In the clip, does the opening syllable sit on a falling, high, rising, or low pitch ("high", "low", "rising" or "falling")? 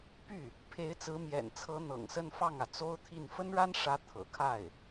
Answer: falling